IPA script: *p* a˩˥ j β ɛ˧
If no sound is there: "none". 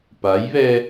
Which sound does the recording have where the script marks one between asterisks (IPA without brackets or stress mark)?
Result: p